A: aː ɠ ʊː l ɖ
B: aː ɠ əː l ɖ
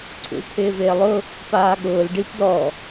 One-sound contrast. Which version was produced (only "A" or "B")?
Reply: A